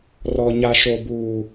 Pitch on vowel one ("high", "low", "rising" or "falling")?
low